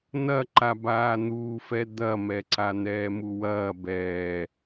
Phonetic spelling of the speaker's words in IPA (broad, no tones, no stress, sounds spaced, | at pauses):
n̪ ɐ ǃ a b aː n̪ uː f ɛ d̪ ɐ m ɛ ǀ a n̪ ɛː m u w ɐː b ɛː